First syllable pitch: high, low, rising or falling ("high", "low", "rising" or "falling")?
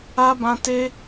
high